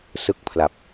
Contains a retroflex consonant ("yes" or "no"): no